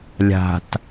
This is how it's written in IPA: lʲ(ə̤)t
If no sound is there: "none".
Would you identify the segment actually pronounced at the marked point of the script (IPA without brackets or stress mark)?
a̤